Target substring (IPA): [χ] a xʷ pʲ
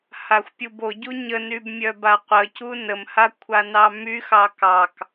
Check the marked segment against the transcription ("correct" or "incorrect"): incorrect